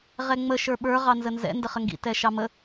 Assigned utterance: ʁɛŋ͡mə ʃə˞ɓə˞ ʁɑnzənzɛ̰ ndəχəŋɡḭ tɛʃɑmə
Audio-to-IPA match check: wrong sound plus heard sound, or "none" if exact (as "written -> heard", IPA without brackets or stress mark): none